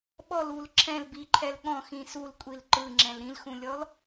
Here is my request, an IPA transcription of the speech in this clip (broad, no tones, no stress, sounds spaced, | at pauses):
ɓ ɔ l u l ǁʰ ɛ̃ l b i ǃʰ ɛ l ɠ ɔ̃ x ĩ s u l kʷʼ i l ǃ ɯ ŋ͡ǁ ɛ̃ l ɾ ĩ l x ũ lʲ ɔ l